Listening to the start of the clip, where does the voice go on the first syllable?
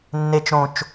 low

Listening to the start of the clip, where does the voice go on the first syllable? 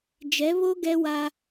rising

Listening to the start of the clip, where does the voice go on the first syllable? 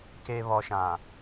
low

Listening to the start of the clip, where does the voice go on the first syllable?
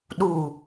low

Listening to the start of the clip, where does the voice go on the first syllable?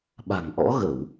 low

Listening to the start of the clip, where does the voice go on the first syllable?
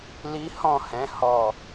high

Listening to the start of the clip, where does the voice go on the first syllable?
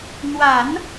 low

